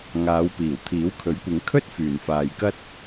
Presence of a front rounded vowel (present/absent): present